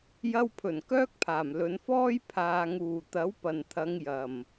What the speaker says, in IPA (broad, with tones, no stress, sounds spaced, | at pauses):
j ɐ˧ w pʰ ɵ˨˩ n k œː˥ k̚ pʰ aː˨˩ m l ɵ˨˧ n f ɔː˥ j pʰ aː˨ ŋ uː˨˩ t̪ ɐ˨˥ w p ɐ˨˩ n t̪ʰ ɐ˨˧ ŋ j ɐ˨˩ m